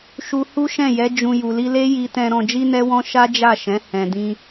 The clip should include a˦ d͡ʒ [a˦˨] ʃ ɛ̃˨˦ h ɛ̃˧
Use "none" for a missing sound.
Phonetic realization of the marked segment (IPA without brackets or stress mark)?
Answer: a˦˨